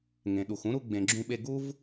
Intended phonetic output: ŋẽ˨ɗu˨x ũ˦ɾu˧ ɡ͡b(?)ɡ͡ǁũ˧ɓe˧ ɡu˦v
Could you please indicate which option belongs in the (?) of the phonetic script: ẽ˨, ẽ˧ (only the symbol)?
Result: ẽ˨